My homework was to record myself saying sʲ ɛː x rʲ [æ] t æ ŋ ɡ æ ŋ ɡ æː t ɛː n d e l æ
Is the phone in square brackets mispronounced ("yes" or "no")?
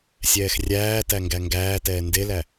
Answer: yes